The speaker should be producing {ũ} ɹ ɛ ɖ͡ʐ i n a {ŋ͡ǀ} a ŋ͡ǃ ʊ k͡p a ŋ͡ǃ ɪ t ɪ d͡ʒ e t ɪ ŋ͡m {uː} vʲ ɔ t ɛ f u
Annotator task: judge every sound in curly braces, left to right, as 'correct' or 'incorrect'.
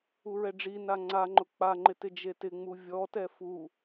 incorrect, correct, incorrect

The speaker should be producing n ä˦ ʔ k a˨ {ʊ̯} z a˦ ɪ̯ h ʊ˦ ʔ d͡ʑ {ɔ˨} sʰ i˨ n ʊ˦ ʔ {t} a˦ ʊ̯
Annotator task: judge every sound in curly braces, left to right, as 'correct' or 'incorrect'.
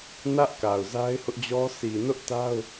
correct, incorrect, correct

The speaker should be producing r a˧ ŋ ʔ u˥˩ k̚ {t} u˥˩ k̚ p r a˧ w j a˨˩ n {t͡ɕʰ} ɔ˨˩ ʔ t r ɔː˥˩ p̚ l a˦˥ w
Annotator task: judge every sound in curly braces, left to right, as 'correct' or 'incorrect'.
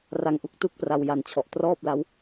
correct, correct

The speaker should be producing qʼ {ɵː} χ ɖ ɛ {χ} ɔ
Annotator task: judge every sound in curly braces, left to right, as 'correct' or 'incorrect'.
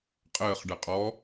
incorrect, incorrect

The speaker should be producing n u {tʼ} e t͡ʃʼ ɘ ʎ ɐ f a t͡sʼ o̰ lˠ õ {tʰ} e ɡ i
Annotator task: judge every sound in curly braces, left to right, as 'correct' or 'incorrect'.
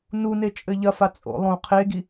incorrect, incorrect

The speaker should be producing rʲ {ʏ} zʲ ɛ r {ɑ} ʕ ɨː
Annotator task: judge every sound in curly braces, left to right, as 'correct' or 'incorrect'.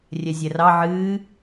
incorrect, correct

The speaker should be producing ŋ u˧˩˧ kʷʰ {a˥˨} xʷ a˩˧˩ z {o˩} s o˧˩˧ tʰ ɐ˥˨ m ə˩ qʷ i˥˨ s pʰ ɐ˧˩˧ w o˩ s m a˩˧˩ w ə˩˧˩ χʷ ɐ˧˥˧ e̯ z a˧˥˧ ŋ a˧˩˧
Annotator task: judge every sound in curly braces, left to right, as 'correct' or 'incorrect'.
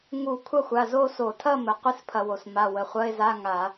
incorrect, incorrect

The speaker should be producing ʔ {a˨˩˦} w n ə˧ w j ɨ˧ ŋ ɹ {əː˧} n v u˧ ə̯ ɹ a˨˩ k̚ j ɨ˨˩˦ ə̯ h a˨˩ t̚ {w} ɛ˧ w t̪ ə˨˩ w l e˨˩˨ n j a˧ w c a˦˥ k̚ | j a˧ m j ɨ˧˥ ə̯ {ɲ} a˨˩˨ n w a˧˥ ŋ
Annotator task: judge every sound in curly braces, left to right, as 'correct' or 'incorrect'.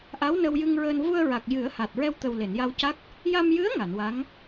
incorrect, correct, incorrect, incorrect

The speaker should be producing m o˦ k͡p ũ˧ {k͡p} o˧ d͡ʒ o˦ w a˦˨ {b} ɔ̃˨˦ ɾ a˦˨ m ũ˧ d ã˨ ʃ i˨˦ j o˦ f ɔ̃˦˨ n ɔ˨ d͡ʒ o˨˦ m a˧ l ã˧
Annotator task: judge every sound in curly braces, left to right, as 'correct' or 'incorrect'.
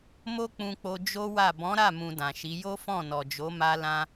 correct, correct

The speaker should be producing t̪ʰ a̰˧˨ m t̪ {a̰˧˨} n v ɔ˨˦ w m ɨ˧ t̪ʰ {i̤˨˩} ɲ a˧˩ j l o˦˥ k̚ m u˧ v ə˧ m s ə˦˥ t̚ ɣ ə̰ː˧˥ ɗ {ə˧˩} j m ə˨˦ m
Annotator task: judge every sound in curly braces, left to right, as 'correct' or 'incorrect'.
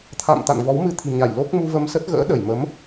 correct, correct, correct

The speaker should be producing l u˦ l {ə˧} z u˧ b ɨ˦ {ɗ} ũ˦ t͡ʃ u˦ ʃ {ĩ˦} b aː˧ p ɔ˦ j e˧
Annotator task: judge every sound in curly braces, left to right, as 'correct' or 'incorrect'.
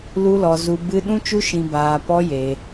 incorrect, correct, incorrect

